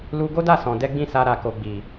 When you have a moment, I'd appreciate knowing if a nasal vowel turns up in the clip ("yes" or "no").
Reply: yes